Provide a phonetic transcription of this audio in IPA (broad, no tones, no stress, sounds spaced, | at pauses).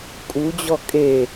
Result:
kʼ u d͡ʑ ɔ kʼ e